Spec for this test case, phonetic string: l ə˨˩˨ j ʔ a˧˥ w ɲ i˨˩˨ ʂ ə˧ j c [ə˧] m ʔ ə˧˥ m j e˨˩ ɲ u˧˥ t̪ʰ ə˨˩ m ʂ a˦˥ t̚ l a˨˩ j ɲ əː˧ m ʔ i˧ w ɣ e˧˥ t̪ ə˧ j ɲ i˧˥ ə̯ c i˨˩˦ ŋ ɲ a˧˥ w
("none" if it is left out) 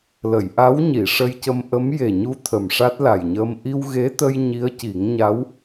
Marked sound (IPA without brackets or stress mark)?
ə˧